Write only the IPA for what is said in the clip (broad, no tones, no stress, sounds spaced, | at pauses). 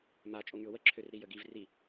m a t͡ʃʼ o ŋ y ʊ̯ w ə ǁʰ ø r ɾ i j ə ɡ i v r i